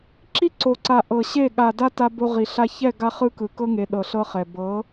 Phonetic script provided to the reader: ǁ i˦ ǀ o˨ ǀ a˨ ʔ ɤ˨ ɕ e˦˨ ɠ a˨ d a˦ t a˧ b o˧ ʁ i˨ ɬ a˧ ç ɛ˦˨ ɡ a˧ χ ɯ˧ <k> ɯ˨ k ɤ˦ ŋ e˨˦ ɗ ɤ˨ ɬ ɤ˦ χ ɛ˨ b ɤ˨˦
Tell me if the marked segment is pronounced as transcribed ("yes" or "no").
yes